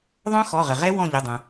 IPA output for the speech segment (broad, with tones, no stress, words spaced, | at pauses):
ðˤœ̃˦˥ xɔ˩˧˩ʁə˩ʁɛ˦˥ wɔ̃˦˨ʎʊ˩˧˩dˤœ̃˩